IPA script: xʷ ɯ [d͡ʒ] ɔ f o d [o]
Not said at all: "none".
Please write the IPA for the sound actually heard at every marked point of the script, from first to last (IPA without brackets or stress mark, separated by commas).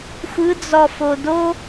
d͡z, o